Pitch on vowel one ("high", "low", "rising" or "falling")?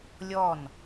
falling